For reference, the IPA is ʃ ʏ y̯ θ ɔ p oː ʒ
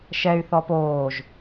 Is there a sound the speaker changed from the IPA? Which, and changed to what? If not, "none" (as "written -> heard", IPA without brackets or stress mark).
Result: ʏ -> ɛ